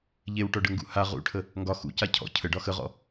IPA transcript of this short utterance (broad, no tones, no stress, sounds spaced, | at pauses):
ʎ e w ʈ ɔ ɖ ə ŋ ɡ ṵ h a ʁ ṵ ʈʰ ə | ŋ ɡ ɒ x ṵ c a cʰ ɔ̰ cʰ ə ɖ ɒ x ə ʁ ɔ̰